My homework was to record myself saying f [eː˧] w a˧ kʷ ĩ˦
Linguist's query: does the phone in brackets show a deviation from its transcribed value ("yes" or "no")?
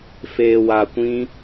no